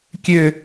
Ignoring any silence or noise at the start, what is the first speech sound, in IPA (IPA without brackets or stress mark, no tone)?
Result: kʲ